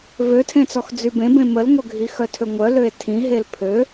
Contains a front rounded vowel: yes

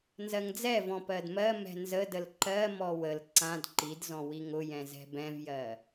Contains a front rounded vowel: no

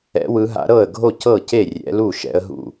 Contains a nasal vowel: no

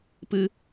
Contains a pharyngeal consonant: no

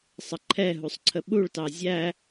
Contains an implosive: yes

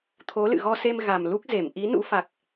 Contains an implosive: no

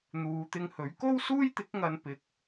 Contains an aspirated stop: no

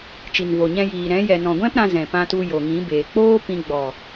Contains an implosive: no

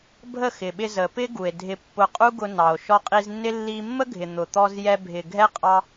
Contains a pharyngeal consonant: no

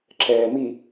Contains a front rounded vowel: no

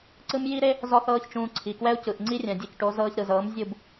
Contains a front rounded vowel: no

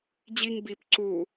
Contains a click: yes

